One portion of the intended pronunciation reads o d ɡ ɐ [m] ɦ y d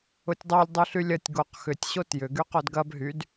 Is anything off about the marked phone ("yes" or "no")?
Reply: yes